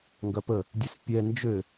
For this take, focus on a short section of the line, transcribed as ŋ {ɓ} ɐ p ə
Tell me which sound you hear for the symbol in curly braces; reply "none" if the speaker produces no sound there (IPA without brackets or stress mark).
ɡ